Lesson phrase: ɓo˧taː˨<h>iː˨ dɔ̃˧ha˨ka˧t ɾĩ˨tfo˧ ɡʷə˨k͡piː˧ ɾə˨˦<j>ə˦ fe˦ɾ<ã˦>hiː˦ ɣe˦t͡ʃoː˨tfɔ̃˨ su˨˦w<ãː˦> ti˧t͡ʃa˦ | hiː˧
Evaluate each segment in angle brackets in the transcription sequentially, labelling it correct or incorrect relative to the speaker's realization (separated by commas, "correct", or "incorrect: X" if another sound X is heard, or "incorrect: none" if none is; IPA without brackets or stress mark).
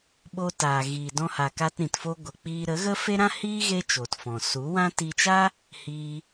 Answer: incorrect: ɣ, incorrect: ɣ, correct, incorrect: ã˦